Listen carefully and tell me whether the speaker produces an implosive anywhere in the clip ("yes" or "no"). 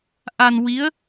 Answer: no